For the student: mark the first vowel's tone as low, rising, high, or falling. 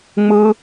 high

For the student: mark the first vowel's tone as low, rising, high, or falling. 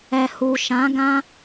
low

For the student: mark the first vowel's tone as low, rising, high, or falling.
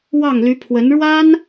falling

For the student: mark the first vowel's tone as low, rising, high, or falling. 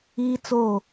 high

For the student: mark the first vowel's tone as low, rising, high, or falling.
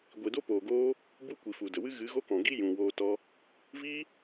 low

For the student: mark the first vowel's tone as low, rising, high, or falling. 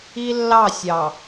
high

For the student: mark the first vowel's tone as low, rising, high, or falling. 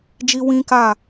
high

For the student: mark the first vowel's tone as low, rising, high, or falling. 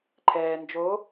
low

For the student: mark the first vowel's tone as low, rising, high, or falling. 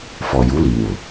low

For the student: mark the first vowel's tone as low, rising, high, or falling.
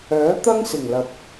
rising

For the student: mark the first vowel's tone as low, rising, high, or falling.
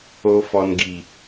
low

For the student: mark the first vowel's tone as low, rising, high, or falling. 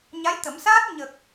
rising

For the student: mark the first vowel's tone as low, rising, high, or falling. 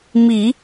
low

